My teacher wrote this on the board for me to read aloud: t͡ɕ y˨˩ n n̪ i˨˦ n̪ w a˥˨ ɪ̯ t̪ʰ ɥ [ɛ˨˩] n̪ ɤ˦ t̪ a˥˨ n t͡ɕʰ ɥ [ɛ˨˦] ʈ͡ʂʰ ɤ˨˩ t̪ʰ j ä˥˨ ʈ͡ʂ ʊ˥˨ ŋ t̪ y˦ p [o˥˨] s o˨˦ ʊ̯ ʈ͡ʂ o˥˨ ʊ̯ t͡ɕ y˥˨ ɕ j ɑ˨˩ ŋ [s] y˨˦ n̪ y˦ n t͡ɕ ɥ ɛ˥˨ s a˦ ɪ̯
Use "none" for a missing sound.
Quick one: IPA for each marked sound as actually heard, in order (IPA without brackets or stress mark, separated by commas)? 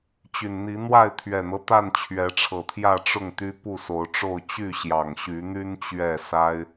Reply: ɛ˨˩, ɛ˨˦, u˥˨, ɕ